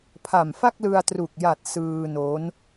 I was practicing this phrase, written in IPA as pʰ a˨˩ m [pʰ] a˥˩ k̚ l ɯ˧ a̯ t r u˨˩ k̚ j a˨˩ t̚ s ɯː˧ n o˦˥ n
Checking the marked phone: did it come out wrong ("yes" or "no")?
yes